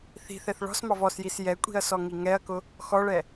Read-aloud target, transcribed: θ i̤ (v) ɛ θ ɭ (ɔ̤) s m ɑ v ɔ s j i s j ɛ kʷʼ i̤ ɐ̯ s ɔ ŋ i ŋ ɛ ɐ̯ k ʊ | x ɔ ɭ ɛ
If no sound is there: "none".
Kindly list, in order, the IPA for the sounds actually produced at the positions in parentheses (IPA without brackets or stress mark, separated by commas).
θ, ɔ̤